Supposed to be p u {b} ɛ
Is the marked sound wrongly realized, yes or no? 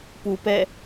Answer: yes